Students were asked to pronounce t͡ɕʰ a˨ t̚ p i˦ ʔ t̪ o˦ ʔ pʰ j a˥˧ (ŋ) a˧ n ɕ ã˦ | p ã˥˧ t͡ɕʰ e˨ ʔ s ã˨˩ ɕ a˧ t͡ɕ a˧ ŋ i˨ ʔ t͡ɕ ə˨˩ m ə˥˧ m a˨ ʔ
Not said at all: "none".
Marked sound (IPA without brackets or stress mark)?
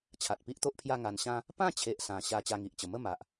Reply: ŋ